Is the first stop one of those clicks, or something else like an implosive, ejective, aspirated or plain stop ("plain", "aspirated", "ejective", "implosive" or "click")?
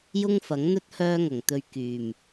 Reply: plain